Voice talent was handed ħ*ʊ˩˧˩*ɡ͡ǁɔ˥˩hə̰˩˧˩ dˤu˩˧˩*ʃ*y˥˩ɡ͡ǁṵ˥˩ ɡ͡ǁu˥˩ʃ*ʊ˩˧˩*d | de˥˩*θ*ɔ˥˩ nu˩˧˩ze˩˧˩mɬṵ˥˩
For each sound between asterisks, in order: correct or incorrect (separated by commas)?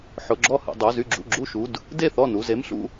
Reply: correct, incorrect, incorrect, correct